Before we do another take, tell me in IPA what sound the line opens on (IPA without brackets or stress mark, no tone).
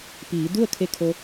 p